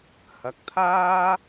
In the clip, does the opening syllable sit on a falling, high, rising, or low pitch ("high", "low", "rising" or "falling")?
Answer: rising